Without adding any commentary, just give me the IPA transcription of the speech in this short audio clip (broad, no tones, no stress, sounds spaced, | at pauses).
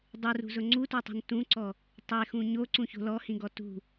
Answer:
dˤ u r ṳ z ʊ ŋ͡ǀ u t o tˤ ṳ n t ũ ǀ ɔ | tˤ e x ũ ɲ o ǀ ũ ç o̤ l ɔ h ĩ ɡ ɔ t ṳ